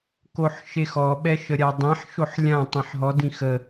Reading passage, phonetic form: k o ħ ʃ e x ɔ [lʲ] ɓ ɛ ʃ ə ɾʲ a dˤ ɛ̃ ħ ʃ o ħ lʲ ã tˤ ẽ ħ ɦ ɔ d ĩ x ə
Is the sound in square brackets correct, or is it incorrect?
incorrect